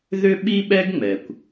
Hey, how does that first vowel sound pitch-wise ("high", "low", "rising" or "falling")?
high